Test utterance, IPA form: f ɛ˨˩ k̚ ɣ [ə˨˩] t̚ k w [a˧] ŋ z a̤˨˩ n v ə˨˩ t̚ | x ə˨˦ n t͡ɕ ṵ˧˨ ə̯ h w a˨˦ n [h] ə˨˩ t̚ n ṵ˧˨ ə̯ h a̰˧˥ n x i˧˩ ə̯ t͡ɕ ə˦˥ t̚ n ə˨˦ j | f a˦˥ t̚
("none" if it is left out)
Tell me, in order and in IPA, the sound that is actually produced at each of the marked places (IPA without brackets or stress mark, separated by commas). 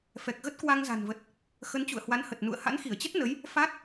ə˦˥, a˧, h